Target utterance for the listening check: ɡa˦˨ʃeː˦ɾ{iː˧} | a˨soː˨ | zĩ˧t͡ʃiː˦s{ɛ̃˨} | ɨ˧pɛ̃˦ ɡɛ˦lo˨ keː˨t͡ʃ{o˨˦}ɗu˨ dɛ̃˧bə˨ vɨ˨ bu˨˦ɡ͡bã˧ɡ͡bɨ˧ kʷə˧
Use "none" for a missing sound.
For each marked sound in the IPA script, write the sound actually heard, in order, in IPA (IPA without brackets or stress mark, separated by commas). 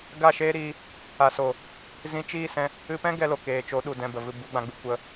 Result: iː˧, ɛ̃˧, o˨˦